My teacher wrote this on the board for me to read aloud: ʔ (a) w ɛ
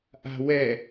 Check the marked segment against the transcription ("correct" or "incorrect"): incorrect